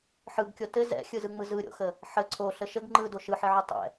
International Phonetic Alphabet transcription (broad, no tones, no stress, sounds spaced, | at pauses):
ħ ɯ ɡ kʲ o t ɘ z ɛ̰ xʲ ɯ z ɯ ŋ͡m ɯ z ɯ ɾʲ o̰ x ə | ħ ə ǀʰ o ɬ ə ʃ ə ɡ ŋ͡ǃ ɯ d o ʃ ɯ ħ ɘ ʕ y tˤ ɛ̰